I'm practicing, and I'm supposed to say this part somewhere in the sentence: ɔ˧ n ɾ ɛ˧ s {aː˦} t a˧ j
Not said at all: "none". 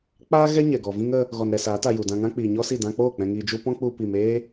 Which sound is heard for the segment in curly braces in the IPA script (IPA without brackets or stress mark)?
aː˨˦